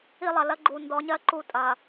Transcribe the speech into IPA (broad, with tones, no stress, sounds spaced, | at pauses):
i˦ lˠ ɐ˨ l ɐ˦ ɡ͡ǃ u˨ n d ɔ˨˦ ɲ ɜ˦ ǃ u˦˨ tʼ ɐ˨